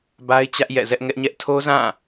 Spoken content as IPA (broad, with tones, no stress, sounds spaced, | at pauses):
b a˦ ɪ̯ t͡ɕ ä˦ ʔ j ɛ̰˦˨ z ɛ˦ ʔ ŋ ɛ˦ ʔ ɲ ɛ˦ ʔ tʰ o˦ z ã˦˨